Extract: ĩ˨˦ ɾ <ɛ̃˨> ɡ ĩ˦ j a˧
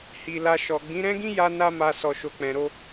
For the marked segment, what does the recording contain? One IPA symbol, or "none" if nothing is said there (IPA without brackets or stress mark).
ɛ̃˦